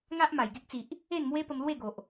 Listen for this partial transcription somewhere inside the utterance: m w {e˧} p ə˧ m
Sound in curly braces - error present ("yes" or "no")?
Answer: yes